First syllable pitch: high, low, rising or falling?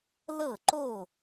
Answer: falling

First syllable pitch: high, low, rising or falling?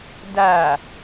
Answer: low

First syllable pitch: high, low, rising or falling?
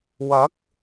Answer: rising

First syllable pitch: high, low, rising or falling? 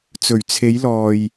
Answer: low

